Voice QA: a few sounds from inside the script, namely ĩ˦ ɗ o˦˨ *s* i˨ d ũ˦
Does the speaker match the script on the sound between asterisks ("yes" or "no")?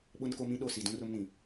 yes